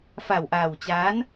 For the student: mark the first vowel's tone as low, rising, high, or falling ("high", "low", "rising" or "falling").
low